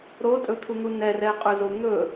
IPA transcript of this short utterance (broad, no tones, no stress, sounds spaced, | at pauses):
ɾ o tʼ ɵ t̪ʰ u n̪ u n ɛ r ɛ qʼ ɵ z o n̪ ɵ